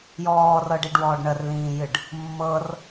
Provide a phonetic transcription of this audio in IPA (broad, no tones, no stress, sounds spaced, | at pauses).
j ɔː r ɤː ɖ i ɖ w ɔː ɖ ɳ ə r l ĩː j ɨ ɖ | mː ɤ r